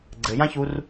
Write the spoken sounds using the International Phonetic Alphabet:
ɡ͡ǀɘjãçur

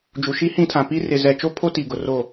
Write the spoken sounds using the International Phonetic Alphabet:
d͡ʒu˨ʃi˦ hĩ˦tʰã˨ pi˦rɪ˨ zɛ˨t͡ʃo˦pʰo˦ ti˨ɡʊ˨ro˦˨

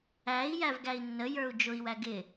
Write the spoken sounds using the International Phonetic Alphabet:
æi̯ jævɡæi̯nːə jə˞u̯d͡ʒʊi̯ wæɡɪ

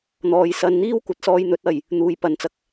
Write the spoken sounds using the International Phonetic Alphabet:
n̪ɔː˨˧jsɐ˧nn̪iː˥w kʷɐ˨˥t̚sɔː˧j n̪ɵ˨˥t̚ɐ˨j | n̪uː˨jpɐ˨nt͡sɐ˨k̚

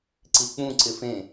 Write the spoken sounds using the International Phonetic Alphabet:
ǀik͡pũ ǀɪfẽ

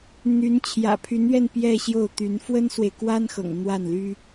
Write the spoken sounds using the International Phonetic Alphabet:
n̪y˧˥n t͡ɕʰjä̰˨˩pʰy˧˥nɥɛ˥˧n pjɛ˥˧ɕjo˥˩ʊ̯ t̪y˧˥n fwə˥nswe˨ɪ̯kwa˥nxɤ̰˨˩ŋ n̪wa˥˩nly˥

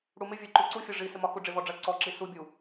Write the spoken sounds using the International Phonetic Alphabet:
ɽumɪvʲɜ ǃuǀufʲɔ ʐisɪmɒ xuɖ͡ʐɪvɔɖ͡ʐɜ ǀɔǁi subʲu

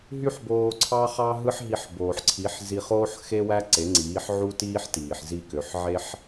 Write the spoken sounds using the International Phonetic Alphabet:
ɦy˥ħboː˧ǀʰɑ˥χɑ˥ ɦɯ˥ħɦi˧ħboː˩ħǀʰi˩˥ħ zi˧χoː˥ħxe˥wæ˥ ǀe˩˥ŋ͡ǀiː˩˥ħʕu˥tiː˥ħ tiː˩ħzi˥˩kø˩˥ħ ʕe˥ħ

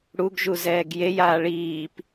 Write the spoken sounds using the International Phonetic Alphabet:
ɽuɡʒuzɛːɡ jejaː ɭiːp

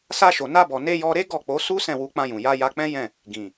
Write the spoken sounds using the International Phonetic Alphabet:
sa˧ʃo˨na˧bɔ˨ ne˧jɔ˧ɾe˦ ɡɔ˦˨k͡po˨˦su˦ sɛ̃˦˨wu˧k͡pã˧jũ˨ ja˧ ja˧k͡pɛ̃˦jɛ̃˦˨ | ɡĩ˨

